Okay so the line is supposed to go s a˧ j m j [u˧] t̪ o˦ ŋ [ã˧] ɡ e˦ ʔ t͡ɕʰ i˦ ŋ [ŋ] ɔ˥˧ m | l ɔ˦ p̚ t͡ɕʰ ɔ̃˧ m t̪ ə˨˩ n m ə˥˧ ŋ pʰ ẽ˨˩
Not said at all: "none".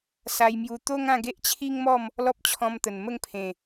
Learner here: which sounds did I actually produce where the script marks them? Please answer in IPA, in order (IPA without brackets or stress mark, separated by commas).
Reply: u˧, ã˥˧, m